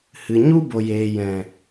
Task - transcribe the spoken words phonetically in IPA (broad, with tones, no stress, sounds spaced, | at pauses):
h ɨ˨ ɲ u˦ b o˨ j eː˨ j ɛ̃˨